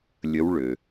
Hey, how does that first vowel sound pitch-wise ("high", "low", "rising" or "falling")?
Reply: rising